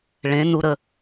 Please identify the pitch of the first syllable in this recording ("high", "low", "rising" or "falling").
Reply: rising